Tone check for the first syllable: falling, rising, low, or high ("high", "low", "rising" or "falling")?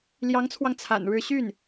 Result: rising